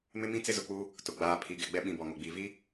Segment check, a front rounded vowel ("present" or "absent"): absent